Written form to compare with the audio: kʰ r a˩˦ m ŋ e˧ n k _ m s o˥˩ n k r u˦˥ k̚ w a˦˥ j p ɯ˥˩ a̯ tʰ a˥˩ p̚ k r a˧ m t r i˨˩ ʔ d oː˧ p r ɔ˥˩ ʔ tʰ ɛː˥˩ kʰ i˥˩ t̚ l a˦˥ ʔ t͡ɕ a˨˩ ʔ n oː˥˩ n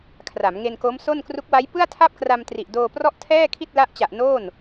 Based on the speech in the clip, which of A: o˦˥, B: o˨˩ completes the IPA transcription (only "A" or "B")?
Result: A